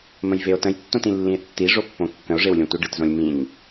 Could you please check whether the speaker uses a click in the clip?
no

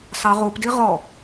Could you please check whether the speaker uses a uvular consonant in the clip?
yes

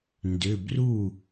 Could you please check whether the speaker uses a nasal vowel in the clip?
no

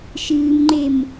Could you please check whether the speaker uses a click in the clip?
yes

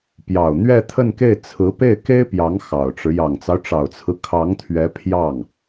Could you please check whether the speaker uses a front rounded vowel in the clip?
no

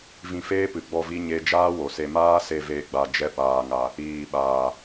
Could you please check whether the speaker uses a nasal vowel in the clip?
yes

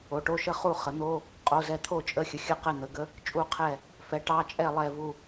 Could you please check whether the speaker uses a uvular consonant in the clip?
yes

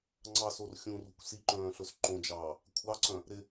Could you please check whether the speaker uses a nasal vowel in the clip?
yes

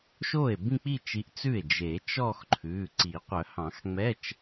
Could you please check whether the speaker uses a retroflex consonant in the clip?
no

